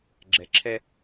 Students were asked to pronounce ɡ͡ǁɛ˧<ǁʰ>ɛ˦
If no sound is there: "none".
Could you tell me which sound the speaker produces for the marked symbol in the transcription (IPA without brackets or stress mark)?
ǁʰ